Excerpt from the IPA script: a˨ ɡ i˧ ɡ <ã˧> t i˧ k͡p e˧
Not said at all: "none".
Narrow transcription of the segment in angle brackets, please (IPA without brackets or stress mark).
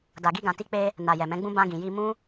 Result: ã˨